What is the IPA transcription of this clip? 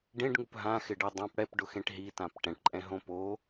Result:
ɖẽɖŋup ɦãxɪɖe dˤãp ɽɛpɖʊxẽʈ ɦitãp ʈɛ̃ʈǃʼɛ̃ɦõ po

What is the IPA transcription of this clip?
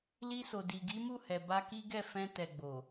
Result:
li˧so˨ di˨ɡi˨˦mu˦˨ hɛ˨ba˧ki˦ ɡɛ˦˨fɛ̃˧ tɛ˨ɡ͡bo˨

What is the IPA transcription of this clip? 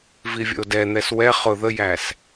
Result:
vivʲə̰o̯dɛn̪ɛs wɛ χʊ ðəjæs

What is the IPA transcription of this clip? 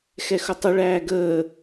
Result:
xɛxʊtˤə ɭæːɡəː

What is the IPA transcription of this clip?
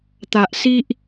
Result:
t̪a˨ʔsi˦ʔ

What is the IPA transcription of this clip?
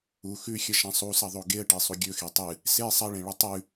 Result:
u xʉxʲɐʃã sˤusɐðˤo ɡeə̯ʈesˤu ɡʲɵxe tˤɨ | se sˤɐɭẽɭɵ tˤʉ

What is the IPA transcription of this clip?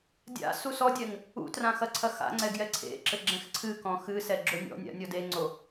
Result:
dʲa̰ susɔdʲɛŋ | ṵtrã xɐǀʰɐxa̰ŋ͡ǀɛ ɡjɛǀʰḛǁɘ ɡ͡ǁɛ̃xǀʰɨkɔ̃ xɨsɛ ɡ͡ǁonʲɔ̰nʲa̰ nʲɔdeŋ͡ǀo

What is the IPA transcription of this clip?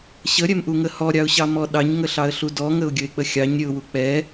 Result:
ɕəɾʲɛmʔuŋə hɔɾʲɑʊ̯ɕɑmɔ ɗɑɲŋəɬɑə̯ɬu dɔŋəʊ̯ɡʲəɪ̯k͡pə xʲɑɲɾʲəʊ̯wu k͡pɛ

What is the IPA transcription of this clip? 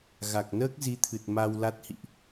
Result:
ɣa˨˩k̚nəː˦˥k̚zi˨˦t̪ʰɨ˨˩t̚ ma˧wla˦˥t̚hḭ˧˨ʔ

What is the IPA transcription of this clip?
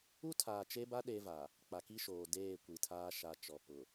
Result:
u˦tʰaː˨t͡ʃe˦ba˦ ɗe˦va˨ | k͡pa˨ki˦ʃoː˨ deː˦˨kʷi˨tʰaː˦ʃa˨ t͡ʃɔ˨pʊ˨

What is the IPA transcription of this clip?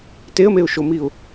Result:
teə̯meʊ̯ʃomiʊ̯

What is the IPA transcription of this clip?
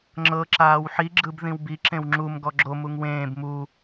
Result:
ŋ͡ǁɤǁaːw ħiɡ͡ǁɯbðĩw bi ǁẽwŋ͡ǁum ɡɔɡ͡ǁo muŋwẽːb mu

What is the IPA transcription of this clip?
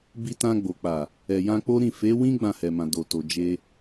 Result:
bi˧tã˧ɡ͡bo˨ k͡pa˨ | ɛ˨jã˧k͡po˦ɾĩ˦˨ fe˨˦wĩ˦ ɡ͡bã˦˨hɛ˨mã˨ do˨to˨ d͡ʒe˧

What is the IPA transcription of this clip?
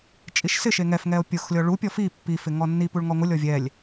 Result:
t͡ʃʼiʃsɪʃe ŋɛfŋɛo̯ pʲʊxlʲɔ ɭupʲɔ fi pːifɪ ŋɔnːipuɭ ŋɔŋʷɪlʲɔ vʲɛlʲ

